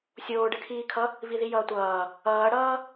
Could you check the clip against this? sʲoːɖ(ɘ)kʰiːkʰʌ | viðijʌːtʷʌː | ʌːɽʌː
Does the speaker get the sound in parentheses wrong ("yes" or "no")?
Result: no